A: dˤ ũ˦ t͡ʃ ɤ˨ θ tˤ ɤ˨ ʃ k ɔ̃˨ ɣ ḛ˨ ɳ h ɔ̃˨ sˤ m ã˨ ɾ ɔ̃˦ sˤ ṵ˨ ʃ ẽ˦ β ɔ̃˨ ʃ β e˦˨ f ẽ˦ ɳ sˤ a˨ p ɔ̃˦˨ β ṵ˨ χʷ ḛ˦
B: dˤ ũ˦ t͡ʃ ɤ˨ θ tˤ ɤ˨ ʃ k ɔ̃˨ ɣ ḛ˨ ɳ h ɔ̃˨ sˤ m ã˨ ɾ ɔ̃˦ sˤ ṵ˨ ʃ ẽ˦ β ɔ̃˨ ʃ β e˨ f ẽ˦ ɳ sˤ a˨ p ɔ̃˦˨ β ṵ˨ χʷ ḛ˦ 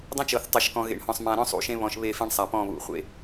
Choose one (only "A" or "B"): A